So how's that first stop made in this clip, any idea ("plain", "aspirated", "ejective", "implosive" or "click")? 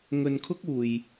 aspirated